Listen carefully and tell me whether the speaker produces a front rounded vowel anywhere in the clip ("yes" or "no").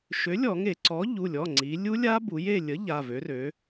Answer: yes